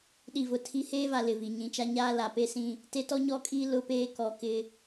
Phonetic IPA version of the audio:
ɗ i˨ v ʊ˨ tʰ i˦ h eː˦ v a˨ l ɪ˨ v i˨ ɲ ĩ˨ t͡ʃ a˦ ɲ aː˦ l a˨ p e˦ s ĩ˦ | t e˦ t ɔ˦ ɲ ɔ˦ kʼ iː˦ l ʊ˦ p eː˦ k ɔ˨ k ɪ˦

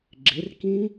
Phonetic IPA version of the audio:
ɡ͡ǁ ɪ r k ĩ

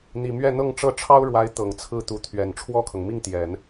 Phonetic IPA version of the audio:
n̪ i˨˩ m ɥ ɛ˥˧ n̪ ɤ˥˧ ŋ ʈ͡ʂ ɤ˥˩ ʈ͡ʂʰ ɑ˥ ʊ̯ ɻ w a˧˥ ɪ̯ t̪ ɤ˨˩ ŋ t͡sʰ ɹ̩˥˩ t̪ u˧˥ t̪ʰ ɥ ɛ˨˩ n ʈ͡ʂʰ w ɔ˥˩ kʰ ɤ˩ ŋ m i˥˩ ŋ t̪ j ɛ˨˩˦ n

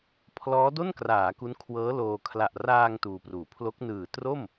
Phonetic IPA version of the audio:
pʰ l ɔː˦˥ d o˥˩ n k r aː˩˦ k u˦˥ n kʰ w ɤː˦˥ l oː˧ kʰ l a˨˩ ʔ r aː˧ ŋ t uː˧ p r uː˨˩ pʰ l o˦˥ k̚ n ɯː˨˩ t r o˥˩ m

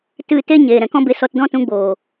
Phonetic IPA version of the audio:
t ɨ˦˨ t e˦ ɲ eː˨ ɾ ɛ̃˨ k ɔ̃˦ b e˧ s ɔ˧ t d ɔ̃˦ t ũ˧ ɡ͡b oː˨

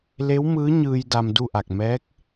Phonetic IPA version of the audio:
l e˧˥ w m ɯː˧˥ ɲ ɯː˧ j d a˧ m d u˥˨ ʔ a˧˩ k̚ m ɛː˧˥ k̚

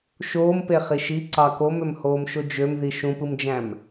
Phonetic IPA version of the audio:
ʃ oː m p e χ i ʃ i ǀ ɑ k o m ø m h oː m ʃ o d͡ʒ ø m ð i ʃ ũ p ɯ m d͡ʒ æ̃ m

